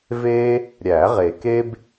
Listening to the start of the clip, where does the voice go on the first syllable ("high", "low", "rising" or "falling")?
high